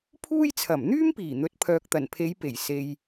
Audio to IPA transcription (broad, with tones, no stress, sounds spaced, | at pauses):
pʰ uː˥ j t͡sʰ ɐ˨˩ m n̪ yː˥ m p iː˨˩ n̪ ɵ˨˥ t̚ pʰ œː˨ k̚ t̪ ɐ˨˩ n pʰ e˨˧ j p e˨˩ j s e˧ j